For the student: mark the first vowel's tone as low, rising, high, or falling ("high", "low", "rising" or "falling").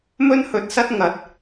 high